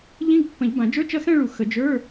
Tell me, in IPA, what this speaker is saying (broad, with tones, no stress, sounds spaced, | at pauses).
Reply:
ʎ ĩ˧˥˧ ɡ pː ə̃˨˩˦ ʎ b ã˨˩˦ d͡ʒ ə˞˧˥˧ t͡ʃ ɐ˥˧ x ɛ̃˥˧ ɭ u˨˩˦ x ə˨˩˦ d͡ʒ ə˞˧˥˧